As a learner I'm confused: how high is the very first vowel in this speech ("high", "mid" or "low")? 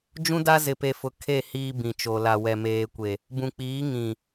high